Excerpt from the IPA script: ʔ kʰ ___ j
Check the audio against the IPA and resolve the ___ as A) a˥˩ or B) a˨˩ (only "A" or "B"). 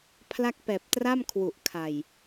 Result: B